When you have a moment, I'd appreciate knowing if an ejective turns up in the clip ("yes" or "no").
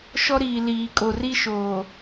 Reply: yes